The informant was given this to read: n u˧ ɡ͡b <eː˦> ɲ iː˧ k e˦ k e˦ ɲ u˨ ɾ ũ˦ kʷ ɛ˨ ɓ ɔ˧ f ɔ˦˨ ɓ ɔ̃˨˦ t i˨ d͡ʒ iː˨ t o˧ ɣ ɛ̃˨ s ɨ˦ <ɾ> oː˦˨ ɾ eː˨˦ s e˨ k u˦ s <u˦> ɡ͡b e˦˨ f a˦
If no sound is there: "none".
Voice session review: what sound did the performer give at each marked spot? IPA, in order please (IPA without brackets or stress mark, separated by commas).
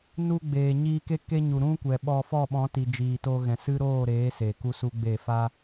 eː˨, ɾ, u˦